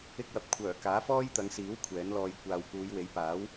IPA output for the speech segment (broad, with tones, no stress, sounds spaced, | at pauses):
ɪ˧ k̚ w ɐ˨ p̚ kʷʰ œː˨˩ k aː˨˥ f ɔː˥ j t̪ ɐ˨˧ ŋ s iː˨˥ w kʷʰ ɛː˨˥ n l ɔː˧ j kʷ aː˨ w k uː˨˧ j w e˨˥ j p aː˨˥ w